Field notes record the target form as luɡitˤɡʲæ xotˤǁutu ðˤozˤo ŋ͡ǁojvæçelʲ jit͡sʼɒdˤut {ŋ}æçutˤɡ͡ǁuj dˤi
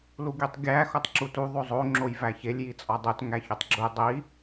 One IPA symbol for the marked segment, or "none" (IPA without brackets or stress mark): ŋ